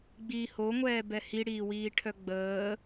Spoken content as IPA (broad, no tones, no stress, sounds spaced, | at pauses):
ɡ͡b iː h o ŋʷ ɛː b ɛ h i ɽ iː w iː ʈʰ œ ɡ͡b əː